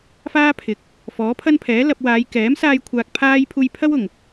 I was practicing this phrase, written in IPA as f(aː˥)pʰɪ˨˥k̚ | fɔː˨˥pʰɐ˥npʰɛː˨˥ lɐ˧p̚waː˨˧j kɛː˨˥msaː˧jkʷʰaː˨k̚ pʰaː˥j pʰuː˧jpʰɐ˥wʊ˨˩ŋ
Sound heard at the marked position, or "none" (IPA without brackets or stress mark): aː˥